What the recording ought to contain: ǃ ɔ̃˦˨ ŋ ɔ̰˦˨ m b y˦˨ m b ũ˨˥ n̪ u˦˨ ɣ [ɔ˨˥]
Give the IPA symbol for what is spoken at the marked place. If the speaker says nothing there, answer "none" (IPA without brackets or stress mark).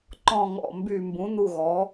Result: ɔ˨˥